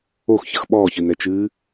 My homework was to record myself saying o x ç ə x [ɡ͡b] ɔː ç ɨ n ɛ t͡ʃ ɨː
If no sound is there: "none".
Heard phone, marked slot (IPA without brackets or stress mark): ɓ